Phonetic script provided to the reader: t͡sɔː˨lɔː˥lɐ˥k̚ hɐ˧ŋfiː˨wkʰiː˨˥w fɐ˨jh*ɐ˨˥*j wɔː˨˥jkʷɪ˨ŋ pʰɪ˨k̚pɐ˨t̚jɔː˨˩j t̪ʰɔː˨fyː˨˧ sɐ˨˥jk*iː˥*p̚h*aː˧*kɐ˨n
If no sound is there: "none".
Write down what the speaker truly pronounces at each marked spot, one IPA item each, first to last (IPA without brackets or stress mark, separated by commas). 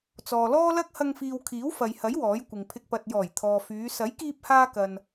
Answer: ɐ˨˥, iː˧, aː˧